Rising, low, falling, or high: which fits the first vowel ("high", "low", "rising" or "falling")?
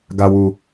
low